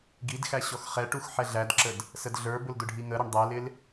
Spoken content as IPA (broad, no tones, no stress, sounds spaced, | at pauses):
ɡ i d x æ ɕ ɔ x χ ɛ ʈ u x ħ ɛ ɮ æ d ǁ ə d | s ə d ɮ ə˞ b ʊ l d ʊ ɖʱ i ŋ ə ɾ ɪ ɳ dˤ æ l ɪ l